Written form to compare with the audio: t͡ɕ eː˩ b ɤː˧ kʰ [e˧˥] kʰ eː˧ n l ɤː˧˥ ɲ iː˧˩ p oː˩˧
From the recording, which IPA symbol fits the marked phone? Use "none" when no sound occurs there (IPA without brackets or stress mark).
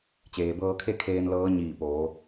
e˥˨